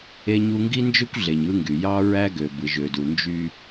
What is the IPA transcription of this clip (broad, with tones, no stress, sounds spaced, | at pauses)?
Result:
e˦ ɲ u˦ ŋ ɡ i˦ n d͡ʒ ø˦ kʷ ɮ e˨ ɲ ɯ˦ ŋ ɡ y˨ j ɑ˦ ɹ æ˦ ɡ ø˨ b ɯ˨ ʒ ø˨ d u˨ n d͡ʒ y˦